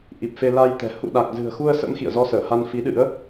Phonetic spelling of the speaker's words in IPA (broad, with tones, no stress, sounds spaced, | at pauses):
ʔ i˨˩ p̚ f e˧ l a˧ j t̪ ɛ̤˨˩ h ṵ˧˨ ɗ a˨˩ k̚ z ɨ̤˨˩ ə̯ x u˧ ə̯ s ə̰˧˥ m x ḭ˧˨ ə̯ z ɔ˧ s əː˧˩ h a˧ n f i˨˦ ɗ ɨ̰˧˥ ə̯